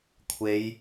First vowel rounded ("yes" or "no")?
no